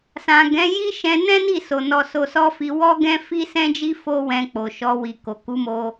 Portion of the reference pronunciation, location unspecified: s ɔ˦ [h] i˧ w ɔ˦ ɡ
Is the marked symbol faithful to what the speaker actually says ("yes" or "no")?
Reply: no